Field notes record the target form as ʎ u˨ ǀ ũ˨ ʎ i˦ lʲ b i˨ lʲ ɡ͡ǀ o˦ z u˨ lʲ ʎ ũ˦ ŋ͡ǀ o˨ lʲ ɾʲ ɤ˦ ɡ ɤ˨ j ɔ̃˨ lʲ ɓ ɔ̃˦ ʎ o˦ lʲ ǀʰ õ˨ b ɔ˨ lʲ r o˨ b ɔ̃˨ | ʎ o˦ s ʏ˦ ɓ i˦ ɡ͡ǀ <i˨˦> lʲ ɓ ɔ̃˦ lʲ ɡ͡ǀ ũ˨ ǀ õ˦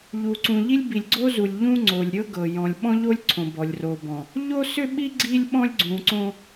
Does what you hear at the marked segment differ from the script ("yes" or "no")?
yes